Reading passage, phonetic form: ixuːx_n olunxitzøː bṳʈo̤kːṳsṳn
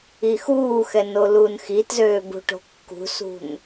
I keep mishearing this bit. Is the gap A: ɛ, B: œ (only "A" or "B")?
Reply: A